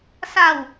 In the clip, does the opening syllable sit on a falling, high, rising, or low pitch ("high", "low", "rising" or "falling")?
falling